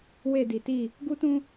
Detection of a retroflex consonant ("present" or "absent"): absent